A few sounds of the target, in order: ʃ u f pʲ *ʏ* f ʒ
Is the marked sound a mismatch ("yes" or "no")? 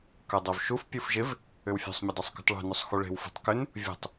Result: yes